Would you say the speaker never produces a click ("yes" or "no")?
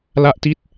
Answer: yes